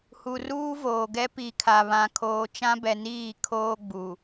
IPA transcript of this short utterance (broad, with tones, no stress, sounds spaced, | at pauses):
h u˨ r uː˦ v oː˨ ɡ ɛ˦ p i˨ kʰ a˨ β ã˨ kʰ oː˨ t͡ʃ ã˦ b ɛ˨ n iː˦˨ kʰ oː˦ ɡ͡b u˨